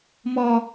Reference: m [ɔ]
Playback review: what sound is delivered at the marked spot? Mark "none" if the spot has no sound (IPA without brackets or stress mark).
ɔ